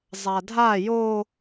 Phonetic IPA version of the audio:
zˤ a dʱ a j o

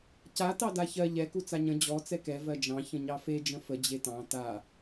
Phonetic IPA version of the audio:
c a t ɑ d a ç ɜ ʎ ɛ k u t͡s a ɲ ə̃ d͡ʑ ɔ t͡s ɛ k ɛ v ɜ d͡ʒ ɑ̃ ç ə̃ ɲ ɑ f e d͡ʒ ə̃ f ə d͡ʑ e t ɑ̃ t a

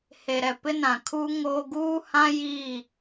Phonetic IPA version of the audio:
h e˨ ɾ ɛ˨ p ɪ˦ n ã˨ kʰ uː˦ ŋ oː˦ ɡ uː˦ h ã˦ j i˦˨

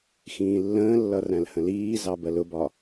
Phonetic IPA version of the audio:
x ĩː lː ə̃ː lː ʌ r æ̃ l h ə̃ l iː z ɑ b ɜ l ʊ b ɒ

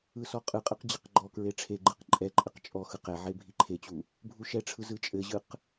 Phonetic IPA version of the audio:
ɯ s ɔ qʼ ɯ qʼ ɯ q d͡ʑ ɘ q ɡ͡ǃ ɔ k ɹ e ʈ͡ʂʰ e ɡ͡ǃ ɯ q ǃʼ ɛ ǃʼ ɘ q t͡ʃʼ ɔ x ɯ q ɛ ʕ e bʱ i ǃʰ e t͡ɕ u | bʱ u ʃ ɛ ʈ͡ʂʰ ɯ z ɯ t͡ʃʼ ɘ ʑ ɯ q

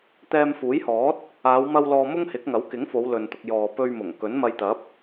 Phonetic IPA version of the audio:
t̪ ɛː˧ m f uː˨˥ j h ɔː˨˥ t̚ | aː˨˧ w m ɐ˧ w l ɔː˧ m ʊ˥ ŋ h ɪ˨˥ k̚ ŋ ɐ˨˥ w k ɪ˨˥ ŋ f o˨˧ w l ɵ˨ n t̪ ʊ˨ k̚ j ɔː˨ p ɵ˧ ɥ m ʊ˨˩ ŋ k ɵ˨˥ n m ɐ˧ j t̪ ɐ˨˥ p̚

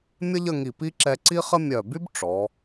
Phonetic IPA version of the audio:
mʲ ə˥ ʎ ə˥˧ ŋ i˧˩ p i˥ ǁ ɛ˧ ǀ i˥ χ ə˥ mʲ œ˧˩ b y˥ b ʈ͡ʂ ɔ˩˧

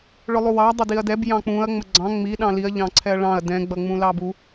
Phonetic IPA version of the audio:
ɭ ʊ lˠ u w ɑ dˤ ɪ d i ɐ̯ d ɛ b j ɑ̃ k͡p ũ ɐ̯ ŋ͡m ə ɡ͡ǀ ɑ̃ ŋ͡m i ɗ ɑ̃ l i ɐ̯ ʎ ɑ̃ ǀʰ ɛ ɐ̯ ɭ ɑ̃ ɐ̯ d ɛ̃ ɡ͡b ʌ ŋ͡m ũ l ɑ b u

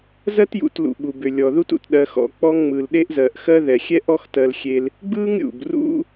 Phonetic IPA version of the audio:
z ɜ˥ t j ṵ˨ t l ṵ˨ ɓ u˩ b ʏ˩ lʲ ɔ˩ ð u˦ t ṵ˩ t ɗ ɜ˨ x ɔ̰˩ k͡p ɔ˦ ŋ ŋ͡m ɯ˩ l ɗ e˦ ʔ z ɜ˩ ʔ x ɜ˦ ð ɛ˩ xʲ ɛ˥ ʔ ɔ˦ x t ɜ˨ l xʲ e˨ l | ɡ͡b ɯ˥ ŋ ɾʲ ṵ˩ b r ṵ˦

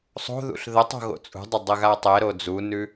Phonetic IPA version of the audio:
sˤ o̤ ð ṵ ɬ ð ə tˤ o̤ ɣ o̰ t͡sʼ ṳ dˤ ə dˤ ə ɣ a tˤ ɛ ɾ o d͡z u n ʉ

